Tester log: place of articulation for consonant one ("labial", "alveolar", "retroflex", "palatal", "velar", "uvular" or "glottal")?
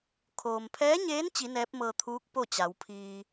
velar